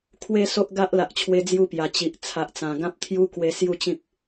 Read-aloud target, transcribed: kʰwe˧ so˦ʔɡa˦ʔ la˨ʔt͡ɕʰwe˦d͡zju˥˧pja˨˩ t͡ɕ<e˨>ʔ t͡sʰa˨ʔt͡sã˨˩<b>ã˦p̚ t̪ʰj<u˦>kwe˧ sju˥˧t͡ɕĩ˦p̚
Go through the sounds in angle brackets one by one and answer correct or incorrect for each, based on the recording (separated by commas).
incorrect, incorrect, correct